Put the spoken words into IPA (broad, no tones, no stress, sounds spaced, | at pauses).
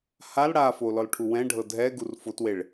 h a l ɽ a f o l ɔ l ʈʰ u w ɛ̃ ɖʱ ɤ dʱ ɛ ɡ u r f o t w e ɭ